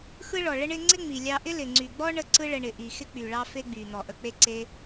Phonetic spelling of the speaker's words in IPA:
x ɯ˦ ɭ ɔ˨ ɭ ə˦ ɳ ɪ˦ ŋ͡ǀ ɪ˦ ŋ͡m i˨ lʲ ɑ˧ ʔ ɪ˦ l ɪ˨ ŋ͡ǀ y˨ ɡ͡b ɔ˦ ɳ ə˦ ǀ ɯ˦ ɭ ə˧ ɳ ɪ˨ ʔ i˨ x ɪ˦ k͡p y˨ ɭ ɑ˦ f e˦ ɡ͡b y˨ n̪ ɔ˨ ʔ ə˧ k͡p e˦ ǀ e˦

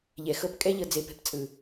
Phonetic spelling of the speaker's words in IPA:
ʎ ɛ˨ x ɤ˦ p kʼ ɛ˦ ʎ ɤ˨ d͡z e˨ p e̤˦ p t͡sʼ ɯ˨

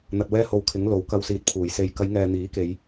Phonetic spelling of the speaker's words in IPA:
n̪ ɐ˧ t̚ w ɛː˥ h o˧ w kʰ ɪ˨˥ ŋ l o˨ w k ɐ˧ w s iː˨˥ t̚ pʰ uː˨˩ j s e˨ j k ɐ˨˧ j ŋ ɛː˨ n̪ iː˨˥ k e˨˧ j

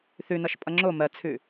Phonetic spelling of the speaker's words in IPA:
θ ʉ n ʌ ʃ pʼ ʌ ŋ͡ǁ o m ɜ t͡sʰ ʉ

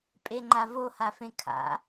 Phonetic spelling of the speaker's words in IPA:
pʼ e ŋ͡ǃ a v o h a f ẽ kʰ a̰

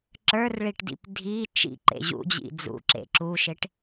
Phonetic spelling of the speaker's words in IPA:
ǁ ə˞ r ɭ i ʈ d ḭ p dʱ i t͡ʃ ḭ ǃ ḛ ʑ ṵ d͡ʑ ḭ d͡z ṵ ǁ ḛ ǁ u ʃ e ʈ

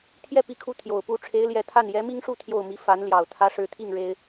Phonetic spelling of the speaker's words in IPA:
t̪ʰ j ɛ˥˩ p i˧˥ kʰ u˧˥ t̪ʰ j o˨˩ ʊ̯ p u˥ ʈ͡ʂʰ e˧˥ ɪ̯ l j ɛ˧˥ t̪ʰ a˥˩ n j ɛ˧˥ m i˥ ŋ ʂ u˥˧ t̪ʰ j o˥˩ ʊ̯ m i˧˥ f a˧˥ n l j ɑ˨˩ ʊ̯ t̪ʰ ä˧˥ ʂ ɻ̩˧˥ t̪ʰ i˥˩ ŋ ɻ e˥ ɪ̯

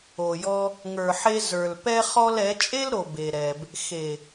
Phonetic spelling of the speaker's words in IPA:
o˨ j ɔ˦ | ŋ ə˞˨ ħ e˧ z ə˞˨ l p ɛ˦ χ ɔ˦ l ɛ˨˦ t͡ʃʼ e˦ l ɾ o˨ b e˨ ɾ ɛ˨ b | x e˨

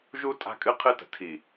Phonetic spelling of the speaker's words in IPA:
ʒ u˦ tʼ a̤˦ kʼ ɨ˦ qʰ ɨ˦ t ə̤˨ tʰ i˨

